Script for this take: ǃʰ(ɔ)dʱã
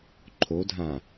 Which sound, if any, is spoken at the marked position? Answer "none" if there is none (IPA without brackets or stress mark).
o